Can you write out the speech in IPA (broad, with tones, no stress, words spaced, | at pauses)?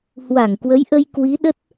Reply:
hwa˧˩ŋkwə˨˦jʔə˧j kwi˨˦ɗə˦˥t̚